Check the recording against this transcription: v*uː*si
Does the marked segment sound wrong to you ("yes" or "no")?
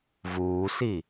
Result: no